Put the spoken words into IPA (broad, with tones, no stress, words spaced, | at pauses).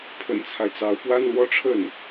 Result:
pʰə̰˨˩nt͡sʰa˦ɪ̯t͡sɑ˧˥ʊ̯ pwa˥nlwɔ˥˧ʈ͡ʂʰə˥˩n